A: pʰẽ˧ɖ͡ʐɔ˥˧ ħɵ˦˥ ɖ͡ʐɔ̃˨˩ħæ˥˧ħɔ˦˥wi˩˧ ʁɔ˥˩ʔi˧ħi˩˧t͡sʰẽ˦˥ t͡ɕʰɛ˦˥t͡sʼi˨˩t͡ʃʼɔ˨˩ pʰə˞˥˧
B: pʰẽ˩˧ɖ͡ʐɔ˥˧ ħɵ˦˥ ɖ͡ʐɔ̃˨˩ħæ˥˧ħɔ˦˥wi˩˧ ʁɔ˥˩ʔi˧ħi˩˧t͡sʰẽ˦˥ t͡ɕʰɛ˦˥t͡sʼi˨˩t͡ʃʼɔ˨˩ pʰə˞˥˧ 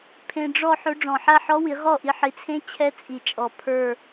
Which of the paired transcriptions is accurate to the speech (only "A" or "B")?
A